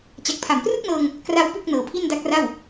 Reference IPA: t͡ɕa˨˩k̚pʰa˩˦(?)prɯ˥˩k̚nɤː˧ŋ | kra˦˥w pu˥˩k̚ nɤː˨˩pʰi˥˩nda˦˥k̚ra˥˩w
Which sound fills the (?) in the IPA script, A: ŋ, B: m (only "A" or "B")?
B